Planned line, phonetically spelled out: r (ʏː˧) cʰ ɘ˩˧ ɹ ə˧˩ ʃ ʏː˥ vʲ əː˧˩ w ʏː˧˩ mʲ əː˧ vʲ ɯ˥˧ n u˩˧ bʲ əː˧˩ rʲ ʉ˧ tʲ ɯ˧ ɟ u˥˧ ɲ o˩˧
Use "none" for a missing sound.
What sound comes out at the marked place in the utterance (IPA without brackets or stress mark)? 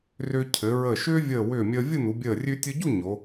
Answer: ʏː˧